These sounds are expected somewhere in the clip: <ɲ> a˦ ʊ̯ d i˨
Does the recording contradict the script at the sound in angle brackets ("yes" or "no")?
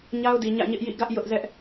no